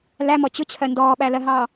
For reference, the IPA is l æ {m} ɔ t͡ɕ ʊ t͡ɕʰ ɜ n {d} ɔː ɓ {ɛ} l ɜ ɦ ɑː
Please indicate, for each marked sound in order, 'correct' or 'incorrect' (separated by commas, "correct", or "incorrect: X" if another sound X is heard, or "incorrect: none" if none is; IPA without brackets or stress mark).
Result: correct, correct, incorrect: æ